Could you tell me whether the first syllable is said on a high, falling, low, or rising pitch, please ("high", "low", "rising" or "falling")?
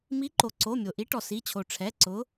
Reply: rising